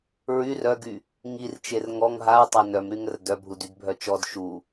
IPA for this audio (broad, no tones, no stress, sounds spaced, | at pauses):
ɹ y r œ ɡ y | ŋ i r t͡ʃ e r ŋ ɔ ŋ ɦ a ɹ tˤ a n œ m ɾ y ŋ ə r d œ bʱ u d y d bʱ œ t͡ʃ ɔ d ʃ u